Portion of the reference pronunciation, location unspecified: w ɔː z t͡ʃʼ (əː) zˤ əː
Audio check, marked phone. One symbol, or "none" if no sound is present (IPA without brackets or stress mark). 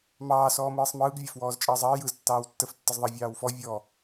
əː